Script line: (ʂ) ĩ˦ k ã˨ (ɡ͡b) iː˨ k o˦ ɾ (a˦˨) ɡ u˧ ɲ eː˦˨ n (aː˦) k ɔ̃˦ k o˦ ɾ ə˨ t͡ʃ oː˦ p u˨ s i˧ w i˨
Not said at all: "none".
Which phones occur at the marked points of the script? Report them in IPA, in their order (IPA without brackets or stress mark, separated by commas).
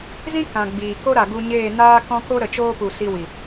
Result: z, ɡ͡b, a˨, aː˦